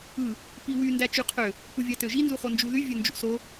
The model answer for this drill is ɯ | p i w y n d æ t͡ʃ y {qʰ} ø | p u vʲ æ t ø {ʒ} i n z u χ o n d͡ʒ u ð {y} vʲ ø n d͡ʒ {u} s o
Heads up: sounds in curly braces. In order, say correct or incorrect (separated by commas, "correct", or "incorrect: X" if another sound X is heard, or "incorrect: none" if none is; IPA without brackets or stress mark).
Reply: correct, correct, correct, incorrect: ṵ